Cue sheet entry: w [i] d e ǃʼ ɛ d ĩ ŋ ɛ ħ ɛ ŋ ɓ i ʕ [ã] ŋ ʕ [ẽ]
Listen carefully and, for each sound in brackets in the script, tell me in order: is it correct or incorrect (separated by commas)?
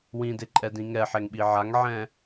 incorrect, incorrect, incorrect